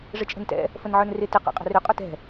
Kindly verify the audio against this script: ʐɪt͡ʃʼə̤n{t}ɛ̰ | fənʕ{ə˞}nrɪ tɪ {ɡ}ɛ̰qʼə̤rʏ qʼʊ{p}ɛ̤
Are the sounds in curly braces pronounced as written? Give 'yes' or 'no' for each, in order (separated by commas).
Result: yes, yes, no, no